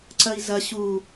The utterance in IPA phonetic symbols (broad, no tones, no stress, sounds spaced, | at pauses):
ǀ ɐ i̯ z ɐ ɕ u